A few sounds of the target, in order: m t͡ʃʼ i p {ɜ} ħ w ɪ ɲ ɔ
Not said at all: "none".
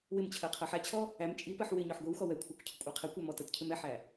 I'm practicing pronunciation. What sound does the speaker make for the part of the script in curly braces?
ɜ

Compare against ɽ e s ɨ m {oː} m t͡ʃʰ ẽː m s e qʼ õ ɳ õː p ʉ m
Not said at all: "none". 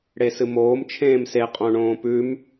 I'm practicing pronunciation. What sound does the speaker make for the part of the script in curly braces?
oː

